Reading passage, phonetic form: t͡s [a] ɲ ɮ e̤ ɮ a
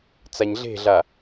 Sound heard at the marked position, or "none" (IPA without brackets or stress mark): a